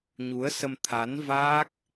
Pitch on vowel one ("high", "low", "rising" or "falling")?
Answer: rising